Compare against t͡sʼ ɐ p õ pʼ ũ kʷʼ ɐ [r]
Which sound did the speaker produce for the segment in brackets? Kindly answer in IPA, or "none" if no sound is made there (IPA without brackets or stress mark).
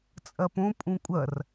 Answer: r